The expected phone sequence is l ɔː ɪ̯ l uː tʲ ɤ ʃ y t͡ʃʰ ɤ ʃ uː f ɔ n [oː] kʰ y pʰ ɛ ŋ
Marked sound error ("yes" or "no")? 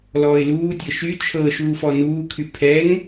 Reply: yes